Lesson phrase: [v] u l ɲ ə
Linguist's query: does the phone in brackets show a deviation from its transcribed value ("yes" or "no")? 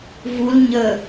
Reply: no